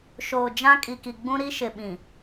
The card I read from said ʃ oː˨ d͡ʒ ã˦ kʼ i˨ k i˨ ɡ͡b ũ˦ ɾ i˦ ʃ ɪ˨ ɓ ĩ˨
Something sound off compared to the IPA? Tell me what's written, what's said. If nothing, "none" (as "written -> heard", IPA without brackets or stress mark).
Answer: none